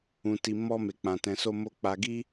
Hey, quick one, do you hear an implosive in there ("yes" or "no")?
no